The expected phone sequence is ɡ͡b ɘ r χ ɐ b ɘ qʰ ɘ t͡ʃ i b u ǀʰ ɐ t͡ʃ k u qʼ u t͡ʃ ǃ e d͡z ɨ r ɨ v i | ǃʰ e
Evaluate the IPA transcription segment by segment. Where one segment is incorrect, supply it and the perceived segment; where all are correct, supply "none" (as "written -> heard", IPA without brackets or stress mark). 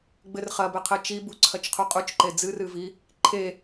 k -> qʰ